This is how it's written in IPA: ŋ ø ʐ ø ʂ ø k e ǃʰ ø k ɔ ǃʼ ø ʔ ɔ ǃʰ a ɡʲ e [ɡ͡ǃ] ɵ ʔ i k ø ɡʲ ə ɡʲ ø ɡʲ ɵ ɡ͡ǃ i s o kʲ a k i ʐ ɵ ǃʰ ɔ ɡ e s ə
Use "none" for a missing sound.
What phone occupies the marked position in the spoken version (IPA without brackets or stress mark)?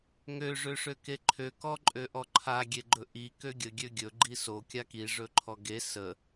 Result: ɡ͡ǃ